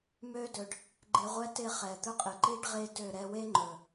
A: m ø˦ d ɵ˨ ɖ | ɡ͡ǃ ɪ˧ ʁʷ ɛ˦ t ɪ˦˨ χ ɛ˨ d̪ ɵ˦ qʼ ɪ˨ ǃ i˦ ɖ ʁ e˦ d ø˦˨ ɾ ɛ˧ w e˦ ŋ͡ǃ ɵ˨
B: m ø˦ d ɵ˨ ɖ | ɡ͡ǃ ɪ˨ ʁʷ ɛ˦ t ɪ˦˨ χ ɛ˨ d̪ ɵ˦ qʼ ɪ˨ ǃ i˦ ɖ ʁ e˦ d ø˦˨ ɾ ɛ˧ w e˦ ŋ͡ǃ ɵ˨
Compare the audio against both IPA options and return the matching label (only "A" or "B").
A